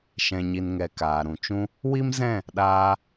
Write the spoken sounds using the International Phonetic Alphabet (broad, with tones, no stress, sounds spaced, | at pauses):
ʃ ɛ̃˨ ɲ i˨ n ŋ ɛ˨ k aː˨ ɾ ũ˨ t͡ʃ ũ˦ | w i˦ m z ɛ̃˦˨ | ɗ aː˧